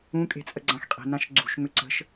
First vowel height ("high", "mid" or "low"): high